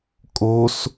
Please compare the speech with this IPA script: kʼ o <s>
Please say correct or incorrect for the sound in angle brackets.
correct